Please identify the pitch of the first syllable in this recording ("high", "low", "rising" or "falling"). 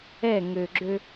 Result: falling